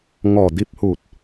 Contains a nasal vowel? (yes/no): no